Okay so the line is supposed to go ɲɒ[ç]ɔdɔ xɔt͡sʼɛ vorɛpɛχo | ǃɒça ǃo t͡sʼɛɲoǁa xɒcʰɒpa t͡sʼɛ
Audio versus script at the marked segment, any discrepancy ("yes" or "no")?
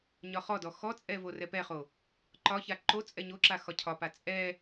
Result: yes